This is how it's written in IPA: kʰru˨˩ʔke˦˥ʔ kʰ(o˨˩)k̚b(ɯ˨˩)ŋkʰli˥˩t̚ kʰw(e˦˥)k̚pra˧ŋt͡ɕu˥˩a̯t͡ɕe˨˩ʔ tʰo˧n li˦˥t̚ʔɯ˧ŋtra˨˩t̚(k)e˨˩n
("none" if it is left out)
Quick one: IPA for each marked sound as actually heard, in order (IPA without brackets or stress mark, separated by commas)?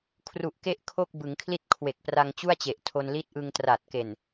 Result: o˥˩, ɯ˩˦, e˨˩, k